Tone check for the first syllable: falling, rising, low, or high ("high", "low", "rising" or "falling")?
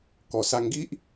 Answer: low